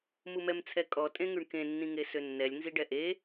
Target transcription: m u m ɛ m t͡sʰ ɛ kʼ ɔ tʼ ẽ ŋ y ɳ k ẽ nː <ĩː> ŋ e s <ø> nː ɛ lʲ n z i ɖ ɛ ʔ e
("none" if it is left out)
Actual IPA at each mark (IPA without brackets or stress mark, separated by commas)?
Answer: ĩ, ø